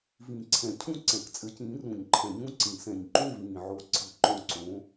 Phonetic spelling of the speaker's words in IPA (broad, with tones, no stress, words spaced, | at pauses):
vĩ˨˩˦ǀʰɛ̃˨˩˦cʰũ˦˥ ǀɛ̃˨˩˦kt͡sʼɘ˨˥cĩː˨˥ rũ˨˩˦ɲǃʰɛ̃˨˩˦ɲũ˦˥ǀĩ˨˩˦ sɛ̃˨˩ɲǃũ˦˨vĩː˨˩ʕo˨˥ ǀʰɨ˨˩˦ǃõ˦˨ǀõ˨˥